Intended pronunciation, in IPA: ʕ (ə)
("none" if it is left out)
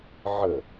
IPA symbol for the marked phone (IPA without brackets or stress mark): ə